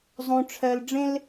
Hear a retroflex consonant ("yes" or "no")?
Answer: yes